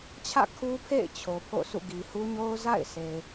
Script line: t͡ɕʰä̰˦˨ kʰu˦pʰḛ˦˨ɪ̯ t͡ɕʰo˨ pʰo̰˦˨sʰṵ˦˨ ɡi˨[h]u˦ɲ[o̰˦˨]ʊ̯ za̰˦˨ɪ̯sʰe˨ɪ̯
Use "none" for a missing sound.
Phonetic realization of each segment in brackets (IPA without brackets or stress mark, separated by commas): h, o˦